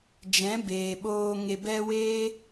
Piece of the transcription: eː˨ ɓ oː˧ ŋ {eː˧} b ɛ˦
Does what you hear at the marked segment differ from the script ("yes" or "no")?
yes